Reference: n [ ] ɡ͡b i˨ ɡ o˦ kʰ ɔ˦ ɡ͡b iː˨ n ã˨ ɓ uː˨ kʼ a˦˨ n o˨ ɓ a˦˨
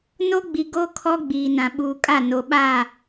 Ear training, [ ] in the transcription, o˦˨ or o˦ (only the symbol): o˦